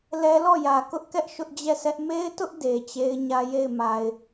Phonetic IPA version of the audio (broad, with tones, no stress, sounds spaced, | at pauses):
l ɛ˦ l ɔ˦˨ j ä˨ k ʊ˦ ʔ k ɛ˦ ʔ ʃ ʊ˦ ʔ d͡ʑ ɛ˦˨ sʰ ɛ˦ ʔ m e˦ ɪ̯ t ʊ˦ ʔ d e˨ t͡ɕ e˦ ɪ̯ ɲ ä˦ j e˦˨ ɪ̯ m a˨ ɪ̯